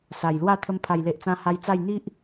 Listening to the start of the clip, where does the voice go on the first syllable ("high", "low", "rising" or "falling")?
low